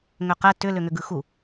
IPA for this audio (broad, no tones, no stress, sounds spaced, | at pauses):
ŋ ʏ q ɛ t ʏ l ʏ ŋ ʏ ɡ ɯ x u